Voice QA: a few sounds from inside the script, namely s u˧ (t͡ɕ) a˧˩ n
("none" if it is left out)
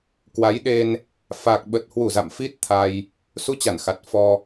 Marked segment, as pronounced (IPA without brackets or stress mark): t͡ɕ